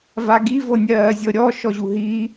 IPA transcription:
v a ɡ i v ɤ nʲ ɜː zʲ ɤ ɾʲ ɔ ʃ ɔ ʑ u ɦ i

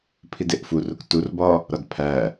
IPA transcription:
pʰ i d e ʔ f u r u k t u r b ɒ | ɾ ɒ d pʰ æ

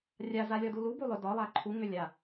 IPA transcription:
rʲ a z a lʲ ɔ d u l u b u lˠ ʏ d ɒ lˠ a ǃʰ u ŋ ʏ lʲ a

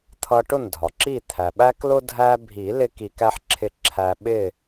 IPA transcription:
t̪ʰ ʌ˧ ʈ ʊ˥˩ n dʱ ɒ˩ ǁ i˥˩ t̪ʰ æ˩ ɓ æ˥ k l ʊ˥ dʱ æ˧ bʱ i˨˩˦ l ɪ˥ k i˧ k æ˥ ħ ǁʰ ɪ˥˩ ǁʰ æ˧ ɓ ɪ˥˩

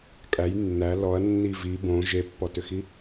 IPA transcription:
kʼ æ j nː æ l ɔ ɐ̯ nː i v i b õ ʒ e pː ɔ t ʏ x i

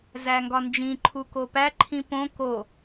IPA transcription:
z æ ŋ ɡ ɒ n d͡ʒ ĩ ǃʰ u k o p æ ǃʰ ĩ p õ k o

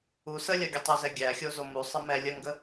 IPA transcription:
u s ə lʲ ɜ ɡʲ ə tˤ u z ɛ ɡʲ æ xʲ o z o m u sˤ ə m ɛ lʲ ə ŋ ɡ ə

